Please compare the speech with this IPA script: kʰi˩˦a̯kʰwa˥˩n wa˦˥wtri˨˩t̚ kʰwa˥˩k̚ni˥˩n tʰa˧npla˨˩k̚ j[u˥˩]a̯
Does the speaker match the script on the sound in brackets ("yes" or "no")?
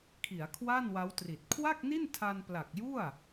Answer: yes